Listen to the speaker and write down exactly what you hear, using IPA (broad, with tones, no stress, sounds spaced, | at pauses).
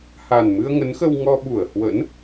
h a˨˩ n m ɨ˧ ə̯ ŋ ə˨˦ n x ə˧ w ŋ ɔ˧ ɓ u˧˩ ə̯ h w ə̰˧˥ n